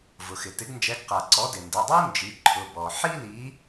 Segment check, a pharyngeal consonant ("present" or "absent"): present